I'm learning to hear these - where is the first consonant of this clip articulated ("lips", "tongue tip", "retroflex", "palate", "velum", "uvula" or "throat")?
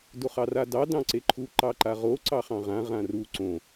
tongue tip